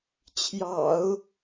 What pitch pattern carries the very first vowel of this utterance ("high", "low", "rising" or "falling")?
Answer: low